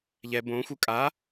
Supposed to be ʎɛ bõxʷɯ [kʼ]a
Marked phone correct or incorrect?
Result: correct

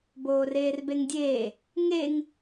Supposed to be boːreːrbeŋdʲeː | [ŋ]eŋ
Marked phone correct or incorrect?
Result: correct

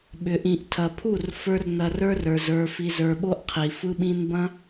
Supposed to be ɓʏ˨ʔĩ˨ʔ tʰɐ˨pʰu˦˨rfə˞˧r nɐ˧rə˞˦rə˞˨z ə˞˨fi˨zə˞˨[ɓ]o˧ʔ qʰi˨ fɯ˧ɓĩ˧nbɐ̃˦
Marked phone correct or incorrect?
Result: correct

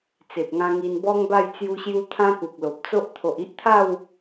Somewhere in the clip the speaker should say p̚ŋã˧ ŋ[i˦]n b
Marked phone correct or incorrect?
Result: incorrect: i˧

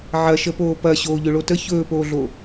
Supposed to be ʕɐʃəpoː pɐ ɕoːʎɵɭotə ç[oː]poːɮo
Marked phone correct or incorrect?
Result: incorrect: ɵː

